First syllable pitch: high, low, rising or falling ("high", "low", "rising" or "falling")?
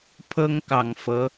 high